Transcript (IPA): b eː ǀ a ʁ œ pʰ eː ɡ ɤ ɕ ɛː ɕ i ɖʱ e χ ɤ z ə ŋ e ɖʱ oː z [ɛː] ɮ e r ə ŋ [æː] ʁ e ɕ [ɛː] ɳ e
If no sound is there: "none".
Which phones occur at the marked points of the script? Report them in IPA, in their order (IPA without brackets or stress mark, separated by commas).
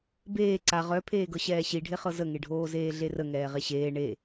eː, ɛː, eː